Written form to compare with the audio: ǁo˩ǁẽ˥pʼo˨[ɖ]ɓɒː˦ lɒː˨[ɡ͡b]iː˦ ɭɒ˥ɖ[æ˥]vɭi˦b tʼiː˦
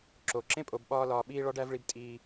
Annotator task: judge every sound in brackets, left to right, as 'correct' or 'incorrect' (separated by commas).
incorrect, incorrect, correct